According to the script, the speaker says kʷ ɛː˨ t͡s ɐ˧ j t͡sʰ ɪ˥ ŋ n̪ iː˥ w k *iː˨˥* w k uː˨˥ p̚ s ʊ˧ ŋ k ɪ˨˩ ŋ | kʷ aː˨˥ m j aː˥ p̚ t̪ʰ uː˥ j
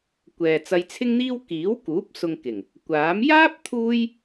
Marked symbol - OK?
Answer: yes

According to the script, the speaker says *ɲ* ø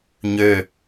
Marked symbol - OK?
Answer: yes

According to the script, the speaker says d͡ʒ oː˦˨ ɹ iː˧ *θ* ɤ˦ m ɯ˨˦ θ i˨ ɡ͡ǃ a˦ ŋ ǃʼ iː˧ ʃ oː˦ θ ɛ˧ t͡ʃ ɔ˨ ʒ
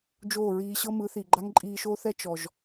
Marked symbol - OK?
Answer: no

